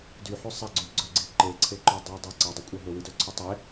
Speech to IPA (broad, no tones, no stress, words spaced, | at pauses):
dyħʉ sˤæ ɡ͡ǀy ɡ͡ǀœ ɡ͡ǀi ǃeǀʰeǃœ dˤidˤe ǀɑdˤykʷʼæ ɦɵwidœǀʰʉ tˤe